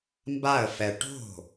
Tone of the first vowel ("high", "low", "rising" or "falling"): falling